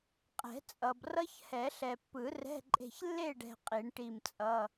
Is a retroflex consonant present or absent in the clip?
present